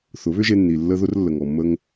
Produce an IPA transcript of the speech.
θ ʊ˨˦ β ʏ˦ ʒ e˧ nː i˨ lː ə˦ ð ʊ˦ r lː ə˨ ŋ ɔ˨ mː ə˧ ŋ

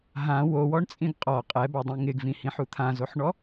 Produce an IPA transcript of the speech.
ɦ ã w o w ɔ ɳ t͡sʼ ĩ ɡ qʼ ɔ qʼ ɛ b ɔ dˤ ĩ ŋ ɪ ɡ v ĩ h ĩ ħ u t̪ʰ ã z o ħ ɳ ɔ

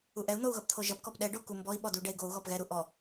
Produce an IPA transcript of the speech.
u ʔ ɛ u̯ n̪ o u̯ ɣ ʌ p t̪ʰ o ʒ ʌ p k ɔ p ɗ ɛ ɖ o k u m b ɔ i̯ ɓ ɔ d u ɖ ɛ i̯ ɡ o u̯ ɣ ɔ p ɣ ɛ ɾ u ʔ ɔ

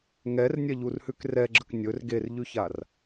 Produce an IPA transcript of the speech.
ŋ ɛ r nʲ ɛ ʎ u r h ʉ k r ɛ ɡ͡ǁ ə k nʲ ɵ r ɡ e r ʎ ʉ ç a r

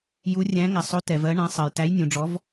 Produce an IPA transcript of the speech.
j u˨˦ rʲ æ̃˨˦ ŋ æ˩ sˤ o˨˦ t ɛ˩ v ɜ˨˦ ɳ æ̃˨˦ sˤ ɜ˩ j t æ˨˦ j nʲ ũ˩ ɖ͡ʐ ɔ˨˦ v

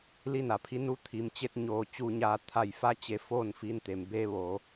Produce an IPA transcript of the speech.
l i˧ n a˩ pʰ i˧ n u˧˥ t̪ʰ i˩˧ m t͡ɕ e˧ t̚ ɲ oː˧˩ t͡ɕ u˧ ɲ aː˧ t̪ʰ a˧˩ j f a˧˥ t͡ɕ e˧ f oː˥˨ n f i˧ n t̪ e˩ m b eː˧˥ ʋ oː˩˧

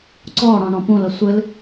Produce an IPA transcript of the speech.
ǀ ɔ ɽ ɔ̃ ɳ ɔ̃ p ũ l ə sʷ ɨ l

